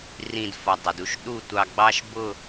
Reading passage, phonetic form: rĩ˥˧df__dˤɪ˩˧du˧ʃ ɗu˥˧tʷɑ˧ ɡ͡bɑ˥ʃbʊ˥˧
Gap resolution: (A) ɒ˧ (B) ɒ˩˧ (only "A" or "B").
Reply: A